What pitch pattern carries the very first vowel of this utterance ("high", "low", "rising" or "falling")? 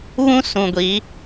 high